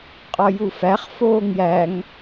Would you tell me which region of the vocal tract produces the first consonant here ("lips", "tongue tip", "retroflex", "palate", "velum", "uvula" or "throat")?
uvula